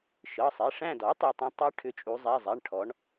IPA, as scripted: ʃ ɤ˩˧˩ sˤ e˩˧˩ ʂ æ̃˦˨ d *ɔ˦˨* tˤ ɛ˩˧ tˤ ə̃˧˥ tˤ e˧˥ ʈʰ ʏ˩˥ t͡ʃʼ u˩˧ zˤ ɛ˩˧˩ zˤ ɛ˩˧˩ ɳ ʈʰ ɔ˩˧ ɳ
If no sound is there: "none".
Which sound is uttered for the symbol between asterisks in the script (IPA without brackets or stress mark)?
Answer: ɔ˩˥